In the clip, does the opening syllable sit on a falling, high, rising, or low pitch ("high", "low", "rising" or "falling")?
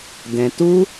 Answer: low